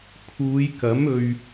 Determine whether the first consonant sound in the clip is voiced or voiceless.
voiceless